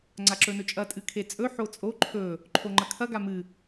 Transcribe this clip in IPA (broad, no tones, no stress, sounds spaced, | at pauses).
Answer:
ŋ͡ǀ a ǁ ɵ n ɵ t͡ʃʼ ɐ tʼ ɨ kʰ e t͡sʼ ɵ ħ o t͡sʼ o ǃʰ ɵ | ǃʰ o ŋ͡ǃ ɐ kʰ ɐ ɡ a m ɨ